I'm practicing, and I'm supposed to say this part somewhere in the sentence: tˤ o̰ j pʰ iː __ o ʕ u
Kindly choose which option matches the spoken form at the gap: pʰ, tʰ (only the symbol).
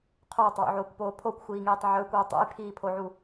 pʰ